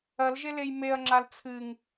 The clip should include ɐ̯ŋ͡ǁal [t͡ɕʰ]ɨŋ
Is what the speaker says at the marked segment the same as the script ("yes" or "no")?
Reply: no